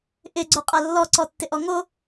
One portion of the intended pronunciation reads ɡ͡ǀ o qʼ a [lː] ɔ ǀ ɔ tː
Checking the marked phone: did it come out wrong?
no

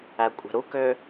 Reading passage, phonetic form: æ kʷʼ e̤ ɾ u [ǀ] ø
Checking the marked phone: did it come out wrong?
yes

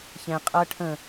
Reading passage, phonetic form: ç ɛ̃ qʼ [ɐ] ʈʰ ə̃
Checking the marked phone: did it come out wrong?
no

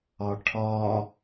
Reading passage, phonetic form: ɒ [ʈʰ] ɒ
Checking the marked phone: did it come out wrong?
no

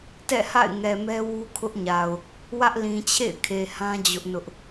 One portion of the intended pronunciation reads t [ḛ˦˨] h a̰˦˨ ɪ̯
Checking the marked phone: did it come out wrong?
yes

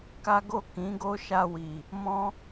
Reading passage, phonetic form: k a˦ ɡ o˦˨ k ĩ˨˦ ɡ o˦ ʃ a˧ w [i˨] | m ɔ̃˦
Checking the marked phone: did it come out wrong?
no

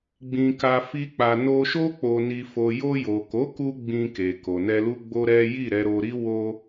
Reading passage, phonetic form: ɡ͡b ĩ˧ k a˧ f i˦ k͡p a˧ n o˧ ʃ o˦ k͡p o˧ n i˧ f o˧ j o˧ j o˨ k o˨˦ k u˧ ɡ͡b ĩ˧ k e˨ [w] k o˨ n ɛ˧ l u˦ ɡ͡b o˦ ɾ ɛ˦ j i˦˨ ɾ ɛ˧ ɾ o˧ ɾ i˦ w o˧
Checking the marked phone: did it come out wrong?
yes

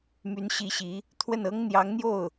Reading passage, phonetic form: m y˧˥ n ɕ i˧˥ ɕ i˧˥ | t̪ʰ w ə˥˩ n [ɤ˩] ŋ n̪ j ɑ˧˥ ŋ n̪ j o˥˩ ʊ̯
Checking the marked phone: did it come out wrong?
yes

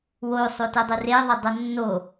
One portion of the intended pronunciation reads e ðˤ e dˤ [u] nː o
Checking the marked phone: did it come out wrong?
no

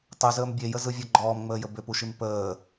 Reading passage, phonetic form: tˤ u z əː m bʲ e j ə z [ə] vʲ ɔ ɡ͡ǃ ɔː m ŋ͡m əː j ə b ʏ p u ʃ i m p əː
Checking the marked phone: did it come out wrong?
yes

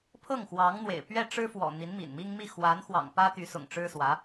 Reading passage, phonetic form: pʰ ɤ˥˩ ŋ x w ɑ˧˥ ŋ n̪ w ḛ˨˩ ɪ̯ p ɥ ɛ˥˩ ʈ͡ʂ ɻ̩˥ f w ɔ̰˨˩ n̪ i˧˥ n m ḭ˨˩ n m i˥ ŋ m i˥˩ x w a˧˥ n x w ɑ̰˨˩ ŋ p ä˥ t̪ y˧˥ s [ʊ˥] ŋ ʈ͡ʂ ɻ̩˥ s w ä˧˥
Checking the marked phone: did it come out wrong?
yes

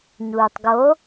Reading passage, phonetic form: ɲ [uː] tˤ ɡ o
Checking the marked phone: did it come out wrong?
no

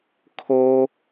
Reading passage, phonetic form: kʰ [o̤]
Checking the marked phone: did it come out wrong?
yes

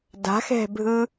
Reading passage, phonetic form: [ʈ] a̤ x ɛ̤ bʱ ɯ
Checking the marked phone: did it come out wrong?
yes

